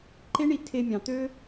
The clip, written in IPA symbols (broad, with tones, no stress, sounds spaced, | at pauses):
ǃ e˦ ɳ i˧ tʰ e˧ mʲ ɑ̃˨ t̪ ø˦